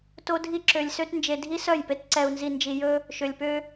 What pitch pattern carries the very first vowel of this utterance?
high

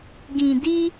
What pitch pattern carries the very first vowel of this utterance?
low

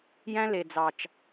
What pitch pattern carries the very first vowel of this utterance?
high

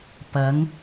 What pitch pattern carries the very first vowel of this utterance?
rising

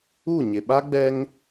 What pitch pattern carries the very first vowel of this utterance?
falling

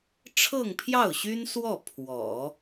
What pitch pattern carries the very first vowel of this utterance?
falling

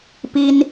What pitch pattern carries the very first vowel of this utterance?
high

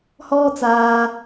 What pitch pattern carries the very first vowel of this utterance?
high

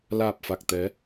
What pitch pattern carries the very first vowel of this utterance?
low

